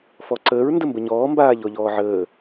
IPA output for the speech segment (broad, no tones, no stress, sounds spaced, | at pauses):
f ɔ ǀ əː ɹ n d ə m b ə ɲ ɔː m b aː ʎ ɔ ʎ ɔː ʕ əː